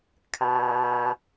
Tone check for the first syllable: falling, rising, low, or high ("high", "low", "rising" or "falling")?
low